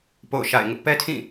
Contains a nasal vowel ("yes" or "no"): yes